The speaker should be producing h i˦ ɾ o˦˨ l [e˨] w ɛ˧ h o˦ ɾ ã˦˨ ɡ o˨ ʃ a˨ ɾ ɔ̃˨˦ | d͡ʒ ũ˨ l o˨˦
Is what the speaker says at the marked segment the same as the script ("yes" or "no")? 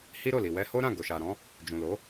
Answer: no